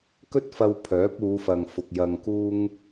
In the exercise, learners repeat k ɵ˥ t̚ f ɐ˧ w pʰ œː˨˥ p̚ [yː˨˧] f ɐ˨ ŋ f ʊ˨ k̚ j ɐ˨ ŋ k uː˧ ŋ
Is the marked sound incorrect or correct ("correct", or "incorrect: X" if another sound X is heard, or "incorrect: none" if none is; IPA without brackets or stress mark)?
incorrect: uː˨˧